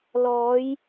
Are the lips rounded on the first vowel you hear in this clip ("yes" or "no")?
yes